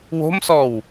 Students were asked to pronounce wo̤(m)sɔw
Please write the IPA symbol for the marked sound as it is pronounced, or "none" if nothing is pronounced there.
m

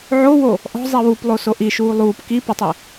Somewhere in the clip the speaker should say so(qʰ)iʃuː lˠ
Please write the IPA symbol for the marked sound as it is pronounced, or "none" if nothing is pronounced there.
ʔ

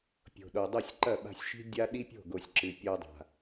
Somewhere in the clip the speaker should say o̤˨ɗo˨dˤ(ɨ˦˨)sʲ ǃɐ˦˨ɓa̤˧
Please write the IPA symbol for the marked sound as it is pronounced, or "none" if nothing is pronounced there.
ɨ˦˨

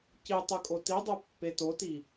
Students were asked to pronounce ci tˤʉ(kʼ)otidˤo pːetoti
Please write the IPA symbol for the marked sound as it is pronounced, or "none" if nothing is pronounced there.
kʼ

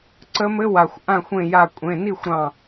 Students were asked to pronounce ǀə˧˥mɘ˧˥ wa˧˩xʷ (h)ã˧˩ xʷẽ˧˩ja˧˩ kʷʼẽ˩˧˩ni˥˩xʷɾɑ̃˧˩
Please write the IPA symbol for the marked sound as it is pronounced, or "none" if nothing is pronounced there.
ʔ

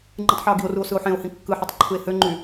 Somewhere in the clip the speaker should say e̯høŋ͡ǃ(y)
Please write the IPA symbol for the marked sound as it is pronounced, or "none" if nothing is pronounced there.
y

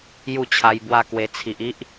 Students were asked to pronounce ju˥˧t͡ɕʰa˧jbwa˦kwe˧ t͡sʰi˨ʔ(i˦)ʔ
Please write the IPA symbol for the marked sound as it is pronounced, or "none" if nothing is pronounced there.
i˦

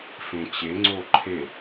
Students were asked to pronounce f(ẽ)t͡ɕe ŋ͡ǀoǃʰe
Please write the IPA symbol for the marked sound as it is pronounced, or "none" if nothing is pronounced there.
ẽ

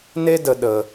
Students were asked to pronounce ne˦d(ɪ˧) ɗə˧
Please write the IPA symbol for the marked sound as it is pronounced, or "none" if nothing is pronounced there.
ə˧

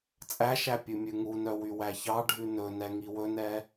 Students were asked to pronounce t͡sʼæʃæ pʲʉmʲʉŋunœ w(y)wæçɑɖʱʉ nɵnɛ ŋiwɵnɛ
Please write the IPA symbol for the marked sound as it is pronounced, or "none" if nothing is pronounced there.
y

